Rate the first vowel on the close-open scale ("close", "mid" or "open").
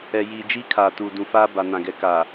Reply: mid